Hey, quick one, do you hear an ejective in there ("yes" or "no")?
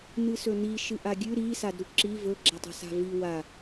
no